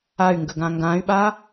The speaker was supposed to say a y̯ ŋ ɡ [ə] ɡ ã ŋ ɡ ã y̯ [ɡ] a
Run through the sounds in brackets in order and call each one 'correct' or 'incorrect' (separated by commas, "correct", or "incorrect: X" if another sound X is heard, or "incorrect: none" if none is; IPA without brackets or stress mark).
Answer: correct, incorrect: ɓ